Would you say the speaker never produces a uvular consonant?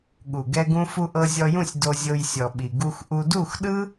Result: yes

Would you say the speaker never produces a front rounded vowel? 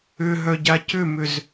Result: no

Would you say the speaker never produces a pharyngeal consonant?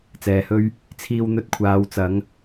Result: yes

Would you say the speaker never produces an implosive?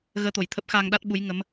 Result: no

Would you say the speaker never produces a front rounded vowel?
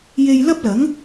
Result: yes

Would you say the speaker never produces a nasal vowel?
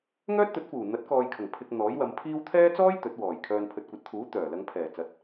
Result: yes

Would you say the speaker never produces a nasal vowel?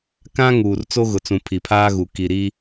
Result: no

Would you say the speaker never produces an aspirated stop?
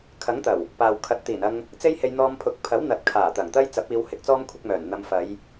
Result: no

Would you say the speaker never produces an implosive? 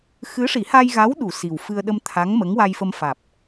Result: no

